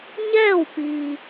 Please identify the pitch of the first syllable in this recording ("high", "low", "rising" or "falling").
falling